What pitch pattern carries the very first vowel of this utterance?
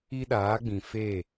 high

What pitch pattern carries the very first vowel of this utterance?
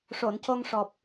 low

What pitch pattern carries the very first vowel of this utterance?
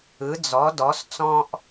rising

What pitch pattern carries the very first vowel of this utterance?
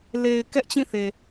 low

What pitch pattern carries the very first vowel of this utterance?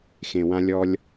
low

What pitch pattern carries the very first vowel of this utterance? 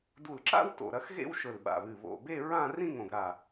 low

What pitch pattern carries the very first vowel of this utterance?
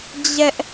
high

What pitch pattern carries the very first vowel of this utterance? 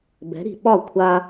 rising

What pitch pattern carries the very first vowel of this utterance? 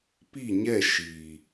falling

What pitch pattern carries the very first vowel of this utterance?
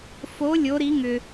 rising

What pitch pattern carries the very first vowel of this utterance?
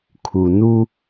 low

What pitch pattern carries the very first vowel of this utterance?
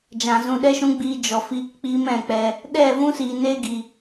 low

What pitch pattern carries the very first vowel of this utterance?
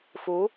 rising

